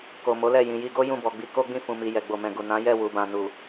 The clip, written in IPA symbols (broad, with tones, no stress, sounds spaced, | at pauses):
k o˨ m o˨˦ l ɛ˦˨ j ĩ˨ j i˧ ɡ o˦ j ũ˦˨ b ɔ˨ ɡ͡b i˧ k o˦ ɡ͡b ĩ˦˨ f ũ˨ m i˨ j ɛ˨ ɡ͡b o˨ m ɛ̃˨ ɡ u˨ n ã˨˦ j ɛ˦˨ w u˨ b ã˨ n u˨